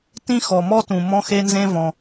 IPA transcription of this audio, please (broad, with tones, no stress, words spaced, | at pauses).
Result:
tĩ˥xɔ˩mɔ˥tũ˩ mɔ̃˥xe˥nzẽ˥vɔ̃˩